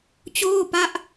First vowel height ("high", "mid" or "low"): mid